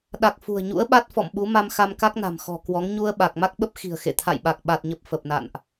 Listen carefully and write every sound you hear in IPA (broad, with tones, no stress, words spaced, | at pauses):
ɗa˨˩k̚ fṳ˨˩ə̯ɲṵ˧˥ə̯ɓa˦˥t̚ fɔ̰˧˨mɓu˨˦ma˧m xa˧mka˦˥k̚na̤˨˩m xɔ̤˨˩kwɔ˨˦ŋ ɲu˧ə̯ɓa˨˩k̚ ma˦˥k̚ɓə˦˥p̚ xi̤˨˩ə̯xḛ˧˨ t̪ʰa̰˧˨jɓa˨˩k̚ ɓa˨˩t̚ɲə˨˩p̚ fə˨˩p̚na̰˧˨nʔ